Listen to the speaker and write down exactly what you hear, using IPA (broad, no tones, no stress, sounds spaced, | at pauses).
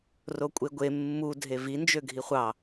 r o kʷʼ e ɡʷ e mː u dʱ e v i n d͡ʒ ø ɡʱ i χʷ ɑ